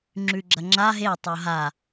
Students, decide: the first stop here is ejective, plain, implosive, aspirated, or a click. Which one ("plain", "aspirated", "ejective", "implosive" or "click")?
click